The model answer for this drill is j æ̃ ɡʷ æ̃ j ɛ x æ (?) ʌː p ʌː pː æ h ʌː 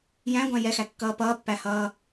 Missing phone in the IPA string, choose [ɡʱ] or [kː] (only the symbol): kː